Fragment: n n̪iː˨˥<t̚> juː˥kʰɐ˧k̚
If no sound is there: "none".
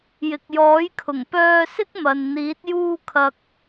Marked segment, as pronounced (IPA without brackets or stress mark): t̚